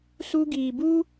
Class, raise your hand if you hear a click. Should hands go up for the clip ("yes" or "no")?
no